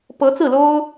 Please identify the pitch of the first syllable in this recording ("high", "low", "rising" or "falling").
rising